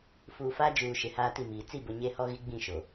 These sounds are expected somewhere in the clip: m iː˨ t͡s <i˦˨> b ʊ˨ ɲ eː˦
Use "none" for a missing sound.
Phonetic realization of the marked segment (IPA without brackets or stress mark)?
i˦˨